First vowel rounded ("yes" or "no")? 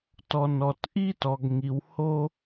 yes